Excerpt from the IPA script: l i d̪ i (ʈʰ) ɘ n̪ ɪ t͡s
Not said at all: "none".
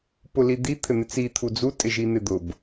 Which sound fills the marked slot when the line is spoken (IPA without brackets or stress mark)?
t̪ʰ